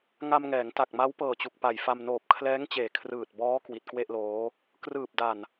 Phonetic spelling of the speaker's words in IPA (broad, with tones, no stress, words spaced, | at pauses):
ŋa˧mŋɛː˩˦ŋ ta˨˩k̚ma˦˥w pɤː˨˩t͡ɕu˨˩k̚pa˨˩jfa˧m noː˨˩p̚kʰlɛː˦˥ŋt͡ɕeː˨˩ kʰrɯː˨˩t̚bɔː˦˥ kwi˨˩t̚kwe˥˩ʔloː˦˥ | krɯː˨˩p̚da˨˩n